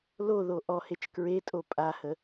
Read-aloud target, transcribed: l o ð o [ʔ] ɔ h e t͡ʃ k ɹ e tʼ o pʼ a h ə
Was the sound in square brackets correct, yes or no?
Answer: yes